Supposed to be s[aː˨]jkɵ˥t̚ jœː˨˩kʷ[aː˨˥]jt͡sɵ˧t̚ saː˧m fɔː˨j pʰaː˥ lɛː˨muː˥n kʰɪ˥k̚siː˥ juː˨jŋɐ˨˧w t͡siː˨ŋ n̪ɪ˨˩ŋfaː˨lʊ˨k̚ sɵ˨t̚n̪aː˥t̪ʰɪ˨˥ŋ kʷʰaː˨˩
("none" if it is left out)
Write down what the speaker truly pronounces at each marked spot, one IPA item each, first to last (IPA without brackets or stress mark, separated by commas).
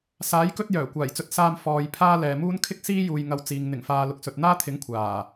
aː˨˥, aː˨˩